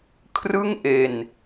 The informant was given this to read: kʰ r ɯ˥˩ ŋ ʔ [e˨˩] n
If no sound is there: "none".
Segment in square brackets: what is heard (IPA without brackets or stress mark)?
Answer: e˨˩